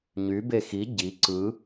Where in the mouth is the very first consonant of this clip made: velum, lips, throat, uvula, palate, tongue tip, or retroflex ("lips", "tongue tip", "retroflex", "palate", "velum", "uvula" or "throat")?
palate